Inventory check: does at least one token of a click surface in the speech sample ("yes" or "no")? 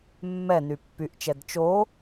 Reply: no